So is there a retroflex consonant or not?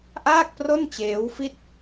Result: no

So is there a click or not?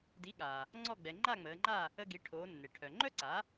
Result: yes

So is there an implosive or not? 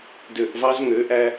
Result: no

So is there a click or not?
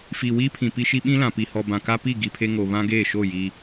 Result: no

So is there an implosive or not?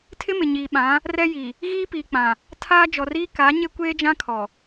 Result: yes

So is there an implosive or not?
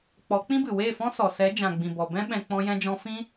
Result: yes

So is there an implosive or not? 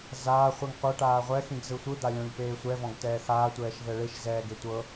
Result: no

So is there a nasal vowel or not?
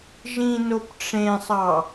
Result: yes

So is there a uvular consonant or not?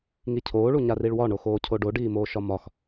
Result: no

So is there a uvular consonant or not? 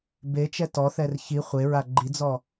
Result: yes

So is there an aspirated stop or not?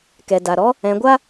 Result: no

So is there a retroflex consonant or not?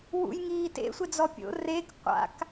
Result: no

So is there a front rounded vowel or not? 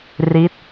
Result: no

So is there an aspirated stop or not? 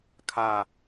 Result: yes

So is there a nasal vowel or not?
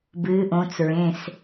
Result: yes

